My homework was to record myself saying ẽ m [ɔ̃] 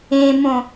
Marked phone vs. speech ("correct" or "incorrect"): incorrect